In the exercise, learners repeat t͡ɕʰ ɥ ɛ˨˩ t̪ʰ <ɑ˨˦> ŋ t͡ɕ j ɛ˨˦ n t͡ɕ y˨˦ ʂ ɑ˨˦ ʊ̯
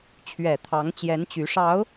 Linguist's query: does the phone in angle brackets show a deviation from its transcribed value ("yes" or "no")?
no